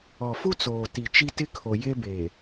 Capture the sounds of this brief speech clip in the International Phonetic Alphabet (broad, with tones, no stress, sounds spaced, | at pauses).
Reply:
ɔ˨ f u˦ t͡s oː˨ t i˨ t͡ʃ i˦ t ɪ˦ kʰ o˨ j e˦ b e˨